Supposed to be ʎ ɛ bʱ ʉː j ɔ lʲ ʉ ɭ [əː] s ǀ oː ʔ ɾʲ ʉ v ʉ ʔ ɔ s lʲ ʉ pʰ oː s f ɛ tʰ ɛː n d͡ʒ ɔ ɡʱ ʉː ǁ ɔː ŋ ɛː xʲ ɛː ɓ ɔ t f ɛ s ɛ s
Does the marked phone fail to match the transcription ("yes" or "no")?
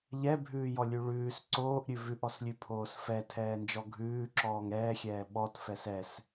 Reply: yes